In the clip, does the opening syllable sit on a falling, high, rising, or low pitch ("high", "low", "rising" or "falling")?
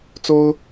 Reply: high